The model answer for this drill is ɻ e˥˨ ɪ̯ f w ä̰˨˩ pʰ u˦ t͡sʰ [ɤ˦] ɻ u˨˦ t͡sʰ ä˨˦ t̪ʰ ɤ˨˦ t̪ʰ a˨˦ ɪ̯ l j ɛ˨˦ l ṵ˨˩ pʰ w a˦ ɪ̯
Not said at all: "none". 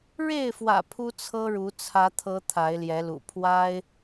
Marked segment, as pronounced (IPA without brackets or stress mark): ɤ˦